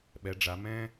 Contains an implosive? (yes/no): yes